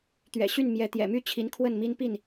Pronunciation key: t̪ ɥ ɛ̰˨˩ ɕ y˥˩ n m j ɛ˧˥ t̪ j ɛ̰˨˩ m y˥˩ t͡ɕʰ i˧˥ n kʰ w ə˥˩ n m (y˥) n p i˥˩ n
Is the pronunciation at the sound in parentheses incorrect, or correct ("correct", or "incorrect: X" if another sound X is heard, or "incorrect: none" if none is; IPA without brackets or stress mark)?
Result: incorrect: i˥